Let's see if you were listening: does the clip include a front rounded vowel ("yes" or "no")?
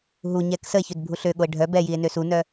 yes